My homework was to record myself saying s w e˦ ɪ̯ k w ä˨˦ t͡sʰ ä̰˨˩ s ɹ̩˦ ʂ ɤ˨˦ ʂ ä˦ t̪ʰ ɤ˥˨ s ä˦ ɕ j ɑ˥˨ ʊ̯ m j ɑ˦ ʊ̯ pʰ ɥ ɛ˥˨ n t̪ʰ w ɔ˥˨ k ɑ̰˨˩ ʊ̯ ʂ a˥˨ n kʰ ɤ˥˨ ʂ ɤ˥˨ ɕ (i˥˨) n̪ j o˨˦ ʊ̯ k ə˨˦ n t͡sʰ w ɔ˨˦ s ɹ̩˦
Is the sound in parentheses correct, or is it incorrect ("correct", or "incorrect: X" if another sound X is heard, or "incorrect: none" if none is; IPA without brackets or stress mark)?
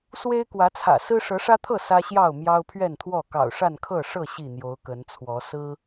correct